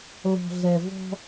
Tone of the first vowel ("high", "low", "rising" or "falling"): low